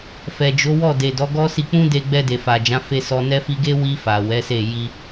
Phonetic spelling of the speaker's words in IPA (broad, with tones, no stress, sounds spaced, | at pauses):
f ɛ˨ d͡ʒ o˨˦ w ɔ˦˨ d e˨ d ɔ˨˦ ɡ ɔ˦ s i˧ k͡p ũ˦ d e˧ ɡ͡b ɛ˧ d e˨ f a˨ d͡ʒ ã˨˦ f e˧ s ɔ˧ n ɛ˦ f i˧ ɡ e˦ w i˧ f a˨ w ɛ˨˦ s e˦˨ j i˧